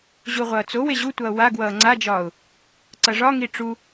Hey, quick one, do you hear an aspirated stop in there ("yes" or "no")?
no